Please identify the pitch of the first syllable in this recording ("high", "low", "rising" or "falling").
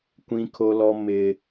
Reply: high